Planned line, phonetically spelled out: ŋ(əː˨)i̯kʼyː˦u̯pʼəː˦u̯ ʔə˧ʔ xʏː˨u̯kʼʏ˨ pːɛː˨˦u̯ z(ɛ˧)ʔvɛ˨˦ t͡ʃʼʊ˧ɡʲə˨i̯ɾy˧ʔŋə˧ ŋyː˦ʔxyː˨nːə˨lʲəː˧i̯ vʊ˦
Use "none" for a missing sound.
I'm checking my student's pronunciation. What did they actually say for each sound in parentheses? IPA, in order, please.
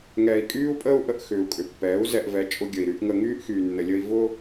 ɛː˨, ɛ˧

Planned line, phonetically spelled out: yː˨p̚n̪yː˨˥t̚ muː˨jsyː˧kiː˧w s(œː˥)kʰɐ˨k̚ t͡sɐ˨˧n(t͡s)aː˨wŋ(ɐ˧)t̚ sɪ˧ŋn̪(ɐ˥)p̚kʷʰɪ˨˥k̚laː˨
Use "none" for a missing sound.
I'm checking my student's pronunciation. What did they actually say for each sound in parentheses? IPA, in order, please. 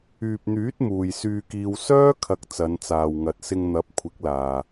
œː˥, t͡s, ɐ˨, ɐ˨˥

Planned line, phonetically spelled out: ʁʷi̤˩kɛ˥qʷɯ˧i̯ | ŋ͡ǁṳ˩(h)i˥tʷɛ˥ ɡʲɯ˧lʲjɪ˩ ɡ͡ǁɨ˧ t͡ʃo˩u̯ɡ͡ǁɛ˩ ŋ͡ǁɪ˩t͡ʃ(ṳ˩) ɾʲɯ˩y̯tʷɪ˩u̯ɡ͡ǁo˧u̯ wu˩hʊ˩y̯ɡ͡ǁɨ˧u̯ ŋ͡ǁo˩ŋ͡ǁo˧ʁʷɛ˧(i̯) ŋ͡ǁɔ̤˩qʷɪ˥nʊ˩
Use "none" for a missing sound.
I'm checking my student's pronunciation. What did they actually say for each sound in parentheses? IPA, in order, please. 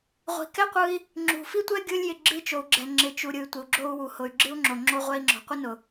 f, u˩, i̯

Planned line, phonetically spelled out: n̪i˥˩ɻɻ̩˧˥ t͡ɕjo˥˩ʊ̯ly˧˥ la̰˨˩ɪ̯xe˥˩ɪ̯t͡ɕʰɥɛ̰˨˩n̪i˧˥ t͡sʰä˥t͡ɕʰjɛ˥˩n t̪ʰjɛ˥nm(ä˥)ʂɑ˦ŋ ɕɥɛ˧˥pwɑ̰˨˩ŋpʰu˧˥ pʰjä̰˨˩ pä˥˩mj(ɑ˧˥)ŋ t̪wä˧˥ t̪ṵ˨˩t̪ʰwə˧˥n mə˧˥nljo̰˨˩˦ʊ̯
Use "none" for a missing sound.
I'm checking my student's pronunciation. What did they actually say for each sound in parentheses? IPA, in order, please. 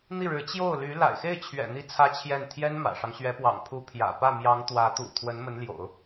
ä̰˨˩, ɑ˧˥

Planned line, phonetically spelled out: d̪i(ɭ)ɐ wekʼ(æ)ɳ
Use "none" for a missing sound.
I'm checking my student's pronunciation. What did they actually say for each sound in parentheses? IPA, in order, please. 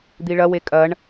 ɭ, ɐ

